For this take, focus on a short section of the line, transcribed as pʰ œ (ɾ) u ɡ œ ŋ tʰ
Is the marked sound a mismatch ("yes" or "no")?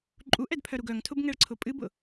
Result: no